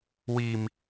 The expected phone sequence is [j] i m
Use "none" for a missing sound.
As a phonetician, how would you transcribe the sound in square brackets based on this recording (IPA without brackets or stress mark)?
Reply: w